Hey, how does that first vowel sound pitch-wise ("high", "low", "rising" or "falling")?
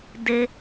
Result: high